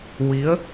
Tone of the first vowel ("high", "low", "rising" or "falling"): rising